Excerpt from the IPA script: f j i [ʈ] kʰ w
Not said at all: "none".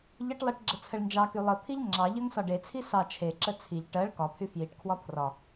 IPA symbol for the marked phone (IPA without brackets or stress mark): ʈ